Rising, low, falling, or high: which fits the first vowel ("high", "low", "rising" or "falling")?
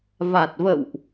low